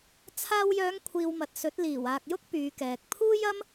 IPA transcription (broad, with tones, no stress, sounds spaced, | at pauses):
t͡sʰ aː˧ w j œː˨˧ ŋ kʷʰ iː˨ w m ɐ˨ t̚ s ɵ˨˥ t̚ l iː˨˩ w aː˨ k̚ j ʊ˥ k̚ p yː˨˧ k ɛː˨ k̚ pʰ uː˥ j ɐ˥ m